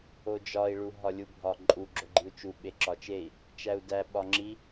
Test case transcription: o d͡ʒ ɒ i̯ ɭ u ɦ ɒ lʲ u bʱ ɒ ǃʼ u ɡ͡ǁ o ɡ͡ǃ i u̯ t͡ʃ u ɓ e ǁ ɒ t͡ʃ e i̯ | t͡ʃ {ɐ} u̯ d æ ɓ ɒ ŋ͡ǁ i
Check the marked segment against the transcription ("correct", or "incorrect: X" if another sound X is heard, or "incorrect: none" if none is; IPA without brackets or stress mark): incorrect: æ